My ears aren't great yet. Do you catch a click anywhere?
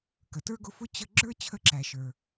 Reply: yes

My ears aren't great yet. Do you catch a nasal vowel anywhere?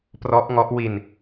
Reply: no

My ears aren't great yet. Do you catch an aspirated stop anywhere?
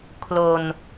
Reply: yes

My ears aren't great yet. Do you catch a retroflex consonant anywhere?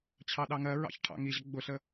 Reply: yes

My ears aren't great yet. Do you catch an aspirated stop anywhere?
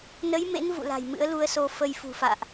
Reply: no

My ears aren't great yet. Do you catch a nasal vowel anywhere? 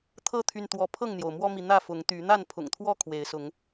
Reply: no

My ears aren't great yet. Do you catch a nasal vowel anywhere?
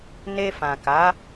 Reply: yes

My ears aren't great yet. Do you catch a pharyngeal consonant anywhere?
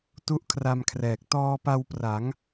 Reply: no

